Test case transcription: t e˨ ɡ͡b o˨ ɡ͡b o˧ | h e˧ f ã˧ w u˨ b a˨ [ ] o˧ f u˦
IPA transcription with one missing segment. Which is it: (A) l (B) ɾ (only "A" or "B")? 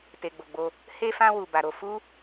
B